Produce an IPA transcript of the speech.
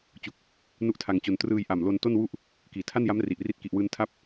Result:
t͡ɕ u˥˩ k̚ | n u˦˥ ʔ tʰ a˧ ŋ t͡ɕ o˧ n t r ɯː˧ j ʔ a˨˩ m l o˧ n t o˥˩ n w u˥˩ ʔ | k iː˨˩ tʰ a˥˩ n j a˦˥ m r i˨˩ ʔ r i˦˥ t̚ k i˨˩ ʔ w ɯː˧ n tʰ a˦˥ p̚

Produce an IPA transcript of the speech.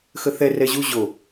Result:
x ə θ ɛ r ɛ ʑ u ʑ o

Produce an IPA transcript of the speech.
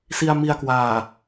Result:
s i˧ a̯ m i˧ a̯ k w aː˨˩

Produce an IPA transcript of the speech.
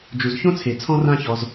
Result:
d͡ʒ u˨ z ç õ˦ t͡sʰ e˨ t͡sʰ ɔ̃˦ r ã˦ ç ɔ˧ z

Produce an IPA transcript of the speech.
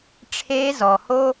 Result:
ʈ͡ʂʰ eː˦ z ɔ˨ h o˦

